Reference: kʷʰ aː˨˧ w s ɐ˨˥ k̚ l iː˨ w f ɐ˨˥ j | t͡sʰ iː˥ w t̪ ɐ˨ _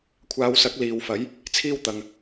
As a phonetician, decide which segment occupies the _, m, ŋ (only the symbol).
ŋ